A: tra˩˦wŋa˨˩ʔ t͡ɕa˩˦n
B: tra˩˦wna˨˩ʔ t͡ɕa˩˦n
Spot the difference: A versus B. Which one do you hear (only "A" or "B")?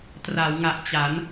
A